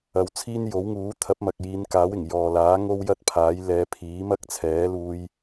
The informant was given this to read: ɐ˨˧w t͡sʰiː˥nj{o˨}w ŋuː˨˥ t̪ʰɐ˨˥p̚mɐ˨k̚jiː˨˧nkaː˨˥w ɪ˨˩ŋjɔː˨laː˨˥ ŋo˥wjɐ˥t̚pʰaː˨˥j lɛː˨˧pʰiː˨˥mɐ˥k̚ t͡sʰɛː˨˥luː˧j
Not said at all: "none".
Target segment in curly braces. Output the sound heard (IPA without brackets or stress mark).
o˨˥